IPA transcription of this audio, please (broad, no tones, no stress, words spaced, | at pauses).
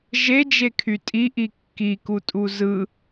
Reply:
ʒed͡ʒekʰy tʼiʔi kːikutʼu zɯ